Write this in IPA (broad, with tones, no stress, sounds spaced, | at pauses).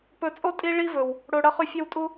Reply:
p ɵ˧ t͡sʼ o˦ tʼ i˦ ɭ i˦ v ɵ˨ w | ɽ o˧ ɽ ɐ˦ χ ʉ˧ fʲ ɐ˦ w tʼ u˦